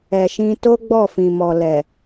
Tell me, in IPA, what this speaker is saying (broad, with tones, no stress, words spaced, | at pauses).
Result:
ɛ˨ʃĩ˧ to˦ɡ͡bɔ˦˨fĩ˨mɔ˨ lɛ˨